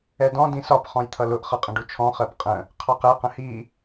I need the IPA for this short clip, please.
ɛ d ɔ̃ d ĩ s ɒ p χ ɔ̃ j t̪ʰ ʌ l ʊ ʔ χ ʌ qʼ ə̃ ɖ u t͡ʃʰ ɔ̃ χ ɜ p qʼ ə̃ | qʰ ɑ q ɛ q ə̃ h i

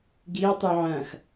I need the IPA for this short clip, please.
ɡ i ɐ̯ tˤ u ʕ ɐ̃ x

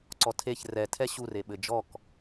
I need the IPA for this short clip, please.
ǀ ɔ tʰ e ç r ɛ tʰ ɛ ɕ u r e ɓ ɘ d͡ʒ ɔ k

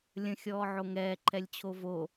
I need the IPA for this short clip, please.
lʲ ə̃ xʲ ɔː ʕ o ŋ ɛː ǃʰ ɛ lʲ t͡ɕʰ o v o

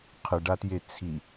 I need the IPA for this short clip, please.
qʰ ɨ ɖ a t j e t͡sʰ i

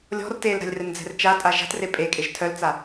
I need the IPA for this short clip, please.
lʲ ɔ̤ r t e l ɾ a̤ lʲ r ɛ n d͡z ɛ̤ r t͡ʃ a tʼ a ʒ a̤ t r e pʼ e kʼ e ʒ tʰ œ l t͡s a

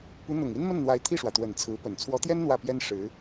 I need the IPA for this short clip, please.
p u˧˥ n̪ ʊ˨˩ ŋ i˥ n m ə˥˩ n n̪ w a˧˥ ɪ̯ t̪ʰ i˥˩ ʂ w ä˩ t̪ w ə˨˩ n t͡sʰ ɹ̩˧˥ p ə˨˩ n t͡sʰ w ɔ˧˥ t̪ j ɛ˥ n n̪ w ä˥˩ p j ɛ˥ n ʂ ɻ̩˧˥

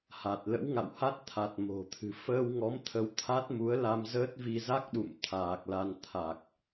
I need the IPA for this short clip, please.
h a˨˩ t̚ l ə̰˧˥ w ŋ a̰˧˨ w h a˦˥ t̚ t̪ʰ a˨˩ t̚ m o̤˨˩ t̪ʰ ɨ̤˨˩ f əː˧ w ŋ ɔ˨˦ m t̪ʰ ə˧ w t̪ʰ a˦˥ t̚ m u˨˦ ə̯ l a˧ m z əː˦˥ t̚ v i˧ z a˦˥ k̚ ɗ ṵ˧˨ m t̪ʰ aː˨˩ k̚ l a˧ n t̪ʰ a˨˩ k̚

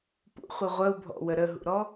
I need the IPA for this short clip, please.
p ṵ χʷ i ʁʷ ə u̯ bʱ ɔ̰ w ə ɾ ə ɦ ṵ ɾ ɔ

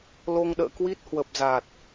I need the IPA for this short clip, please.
l o˧ ŋ ɗ ə̰ː˧˨ k w i˦˥ t̚ h w ə˨˩ p̚ z a˨˩ t̚

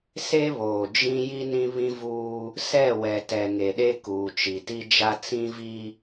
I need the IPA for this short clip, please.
s e˦ β oː˨ d͡ʒ ĩ˦ j i˦ n ĩ˦ β ĩ˦ v uː˦ | s ɛ˦˨ w ɛ˨ t ɛ˨ ŋ e˨ ɗ e˦ k uː˨ t͡ʃ i˨ t i˦ d͡ʒ a˦ t͡s ĩ˦ v i˦

